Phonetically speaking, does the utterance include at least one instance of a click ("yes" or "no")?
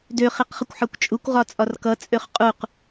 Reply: no